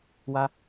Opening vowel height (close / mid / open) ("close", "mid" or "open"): open